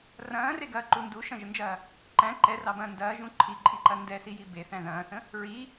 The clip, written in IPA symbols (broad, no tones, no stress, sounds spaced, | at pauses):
r ɐ̃ː r e ɡ ɐː ǃ u n d u ʃ ɐ̃ ʒ ə n d͡ʒ ɐː | ǃ æ̃ ǃ ɛ r ɑ b ɐ̃ː n d ɐː ʒ ũ ǃʰ i ǃʼ i ǃ ɐ n d ɛ s i j i b e θ æ̃ ð ɐ̃ː θ ə̃ | ɹ i